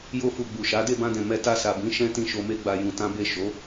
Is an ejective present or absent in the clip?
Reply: absent